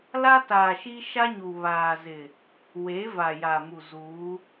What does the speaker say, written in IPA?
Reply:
l a˦ t aː˨ ʃ iː˦ ʃ a˦ ɲ u˨ β aː˨ z ɪ˨ | w e˨˦ v a˨ j a˨ m u˨ z uː˨˦

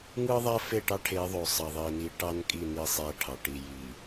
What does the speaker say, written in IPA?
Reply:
ŋ ɯ˦ ðˤ æ˦ f e˦˨ ʈ ɑ˦ ʈʰ e˨˦ ðˤ o˨ sˤ ɑ˨ ðˤ i˨ n i˨˦ ʈ ɑ˦ n kʼ i˦˨ n i˦˨ sˤ æ˦ ʈʰ ɑ˨ ʈ i˨ j i˨

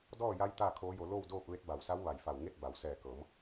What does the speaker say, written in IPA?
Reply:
d ɔː˥˨ j a˧˥ j t̪ aː˥˨ kʰ oː˧˥ j o˧ l o˥˨ w d oː˥˨ p̚ ʋ e˧˥ t̚ b a˧˩ w s a˧˥ w ʋ a˧˩ j f a˧˩ w ŋ e˥˨ t̚ b a˩˧ w s ɛː˧˩ k ɤː˩˧ m

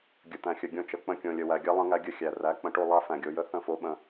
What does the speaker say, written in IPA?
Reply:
ɡʲ ə˨ t̪ æ̃˨ xʲ ə˨ ɡʲ õ˧ t͡ʃ ə˨ k͡p ə̃˧ kʲ õ˨ lʲ ə˨ w æ˨ ɡʲ a˦ lˠ ə̃˧ ŋ æ˧ ɡʲ ə˧ xʲ æ˨ r æ˨˦ k͡p ə̃˨ ʈ o˦˨ lˠ a˦ f æ̃˨ ɡʲ o˧ j ə˦ θ ə̃˦˨ f o˧ ɓ ə̃˧

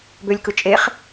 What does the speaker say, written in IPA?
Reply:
b ø lʲ k ɯ t͡ʃʼ e χ

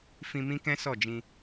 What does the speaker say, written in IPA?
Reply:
f ĩ˧ m ĩ˦ k ɛ̃˦ s ɔ˦˨ d͡ʒ ĩ˧

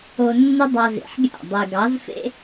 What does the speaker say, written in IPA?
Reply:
o˧ nː ɪ˦ dˤ ɑ˧ z ḛ˨ ħ ɡʲ a̰˦˨ dˤ ɪː˨ ɡ ɑ˨˦ z f ḛ˦

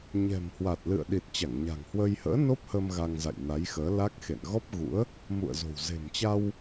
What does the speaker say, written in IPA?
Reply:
ɲ ɛ̤˨˩ m h w a˨˩ t̚ l ɨ̰˧˨ ə̯ ɗ i˨˩ t̚ t͡ɕ a˧˩ ŋ ɲ a̤˨˩ ŋ h w ə˧ j h ə̰ː˧˥ n o˦˥ p̚ h ə˧ m ɣ a˧ ŋ z a̰˧˨ j n a˨˦ j x əː˨˦ l a˦˥ k̚ x ḛ˧˨ n ɣ ɔ˦˥ p̚ ɣ ṵ˧˥ ə̯ | m ṵ˧˨ ə̯ z o̤˨˩ w z e̤˨˩ m t͡ɕ a˧ w

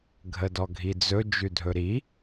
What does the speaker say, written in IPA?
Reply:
ɡʱ ə d ɔ ɡʱ i d͡z ɵ d͡ʒ ʉ dʱ ɵ ɾ i

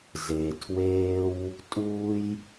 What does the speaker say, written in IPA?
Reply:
z e˧ tʰ w eː˥ w | tʼ uː˥ j

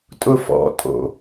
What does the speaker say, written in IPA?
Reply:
tʼ ʊ f ɔ̰ tʼ o̰

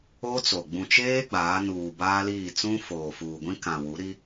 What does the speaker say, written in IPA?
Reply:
o˦ t͡s o˨ ɡ͡b ũ˨ t͡ʃ eː˦ ɡ͡b aː˨˦ n uː˨ b aː˦ l iː˦˨ t͡s ũ˦ f oː˨ f uː˨ ɡʷ ĩ˦ k ã˨ w u˨˦ ɾ i˦

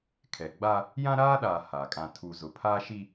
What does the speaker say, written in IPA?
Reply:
kʰ ɛ˨ ɡ͡b a˦ | j ã˦ ɾ aː˦ ɗ aː˨ h a˨ kʼ ã˨ tʰ u˨ z ʊ˨ pʰ aː˦ ʃ i˦

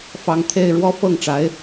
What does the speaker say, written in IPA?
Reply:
f ɑ˧˥ ŋ t̪ʰ e˥˩ ɪ̯ ɻ w ɔ˥ f ɤ˥˩ ŋ ʈ͡ʂ a˧˥ ɪ̯

